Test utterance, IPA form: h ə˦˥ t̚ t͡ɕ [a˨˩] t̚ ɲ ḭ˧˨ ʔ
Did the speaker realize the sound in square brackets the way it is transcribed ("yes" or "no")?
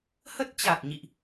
yes